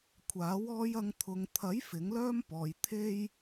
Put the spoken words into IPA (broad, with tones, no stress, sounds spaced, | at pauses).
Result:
kʷʰ aː˨˥ w ɔː˧ j ɐ˧ ŋ t̪ʰ ʊ˨ ŋ t̪ʰ ɐ˨˥ j f ɪ˨˥ ŋ l œː˥ m p ɔː˨ j t̪ʰ e˥ j